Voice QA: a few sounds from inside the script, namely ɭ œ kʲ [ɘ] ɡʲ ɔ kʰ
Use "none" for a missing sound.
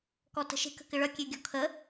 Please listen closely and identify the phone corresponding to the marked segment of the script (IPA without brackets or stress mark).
ø